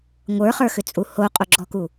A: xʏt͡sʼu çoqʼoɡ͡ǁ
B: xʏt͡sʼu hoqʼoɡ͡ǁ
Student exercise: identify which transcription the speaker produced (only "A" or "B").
B